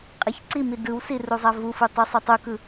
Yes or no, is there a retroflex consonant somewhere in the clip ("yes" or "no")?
no